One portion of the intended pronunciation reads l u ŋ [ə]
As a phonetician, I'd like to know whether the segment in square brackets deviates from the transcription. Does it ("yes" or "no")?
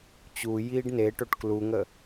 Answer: no